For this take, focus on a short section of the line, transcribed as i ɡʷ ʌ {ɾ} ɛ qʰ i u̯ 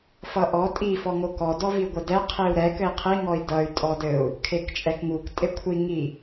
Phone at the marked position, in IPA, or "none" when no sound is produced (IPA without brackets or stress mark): d